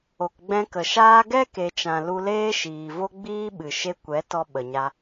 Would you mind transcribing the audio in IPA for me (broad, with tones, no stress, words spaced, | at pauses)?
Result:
o˨kɡ͡bɛ̃˧kə˨ʃaː˦ ɡɛ˦ke˨t͡ʃã˨ lu˧leː˦ ʃiː˨vo˦ɡ͡biː˦ɓɨ˨ ʃe˧kʷɛ˨˦ tɔ˧ɓə˨ɲa˧